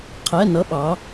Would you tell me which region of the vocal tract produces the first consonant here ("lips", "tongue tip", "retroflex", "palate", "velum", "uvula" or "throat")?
uvula